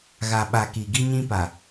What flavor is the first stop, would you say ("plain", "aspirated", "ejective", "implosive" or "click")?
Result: implosive